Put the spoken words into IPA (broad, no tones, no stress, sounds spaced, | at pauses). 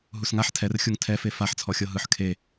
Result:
ɦ u s ŋ a ħ tʰ ɛ r xʲ u ŋ tʰ ɛ f e f a ħ t͡sʰ ɔ xʲ ɤ ɦ ɯ ħ kʰ e